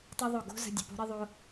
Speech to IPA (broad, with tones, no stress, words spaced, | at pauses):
tˤo˦ðˤo˦˨ ɡo̤˦zə̤˧ dʲə˨po̤˦ɾi˦ðˤo˦